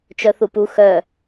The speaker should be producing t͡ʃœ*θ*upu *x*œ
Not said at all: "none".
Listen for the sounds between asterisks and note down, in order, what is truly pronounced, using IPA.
θ, x

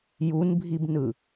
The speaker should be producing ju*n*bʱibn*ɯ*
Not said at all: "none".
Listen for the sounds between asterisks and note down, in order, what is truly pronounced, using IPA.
n, ɯ

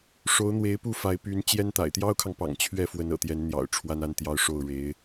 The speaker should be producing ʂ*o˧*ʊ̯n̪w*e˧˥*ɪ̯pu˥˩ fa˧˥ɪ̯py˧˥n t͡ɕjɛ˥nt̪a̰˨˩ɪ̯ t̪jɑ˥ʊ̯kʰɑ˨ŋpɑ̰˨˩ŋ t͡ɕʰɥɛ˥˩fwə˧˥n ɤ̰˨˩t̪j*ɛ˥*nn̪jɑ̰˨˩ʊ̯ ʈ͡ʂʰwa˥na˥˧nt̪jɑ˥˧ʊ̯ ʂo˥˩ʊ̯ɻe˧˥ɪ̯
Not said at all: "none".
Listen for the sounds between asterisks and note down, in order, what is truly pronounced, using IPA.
o˧˥, e˧˥, ɛ˧˥

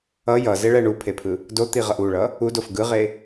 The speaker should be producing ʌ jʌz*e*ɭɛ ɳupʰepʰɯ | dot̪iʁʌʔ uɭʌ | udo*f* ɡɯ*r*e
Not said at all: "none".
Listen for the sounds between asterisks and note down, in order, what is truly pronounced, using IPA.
e, f, ʁ

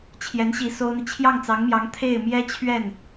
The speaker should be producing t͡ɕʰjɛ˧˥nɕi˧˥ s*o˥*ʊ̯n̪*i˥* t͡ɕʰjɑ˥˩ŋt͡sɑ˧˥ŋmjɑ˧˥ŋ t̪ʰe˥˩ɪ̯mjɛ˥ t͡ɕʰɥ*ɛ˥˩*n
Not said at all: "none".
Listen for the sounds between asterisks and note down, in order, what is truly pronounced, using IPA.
o˥, i˨, ɛ˥˩

